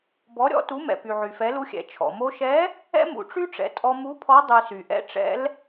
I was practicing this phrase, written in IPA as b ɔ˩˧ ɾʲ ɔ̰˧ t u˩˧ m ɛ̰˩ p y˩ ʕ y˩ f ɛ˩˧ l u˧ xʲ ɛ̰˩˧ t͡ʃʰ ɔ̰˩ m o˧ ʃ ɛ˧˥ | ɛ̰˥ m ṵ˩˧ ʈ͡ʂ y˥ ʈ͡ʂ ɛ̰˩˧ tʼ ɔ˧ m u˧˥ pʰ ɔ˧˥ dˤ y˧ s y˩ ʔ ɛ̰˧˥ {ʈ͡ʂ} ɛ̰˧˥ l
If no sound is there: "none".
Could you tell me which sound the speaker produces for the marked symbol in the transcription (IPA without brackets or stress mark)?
ʈ͡ʂ